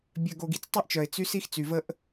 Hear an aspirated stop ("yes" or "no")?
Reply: no